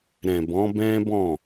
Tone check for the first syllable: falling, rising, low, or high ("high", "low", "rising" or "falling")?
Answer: low